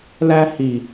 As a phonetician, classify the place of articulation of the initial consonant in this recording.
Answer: alveolar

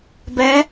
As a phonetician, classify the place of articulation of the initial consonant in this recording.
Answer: labial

